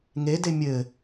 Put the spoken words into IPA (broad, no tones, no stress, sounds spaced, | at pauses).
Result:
ŋ e d e mʲ ɘ